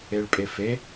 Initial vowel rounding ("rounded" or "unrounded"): unrounded